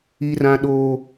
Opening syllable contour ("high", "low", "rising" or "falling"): low